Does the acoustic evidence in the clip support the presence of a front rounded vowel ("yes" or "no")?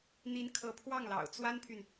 yes